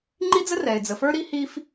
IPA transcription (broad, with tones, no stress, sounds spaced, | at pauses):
ŋ͡ǃ i˥ d͡z ə˥ r ɛ˩ ɪ̯ d͡z ə˩ f ə˞˥ ɾ i˥ h i˥ f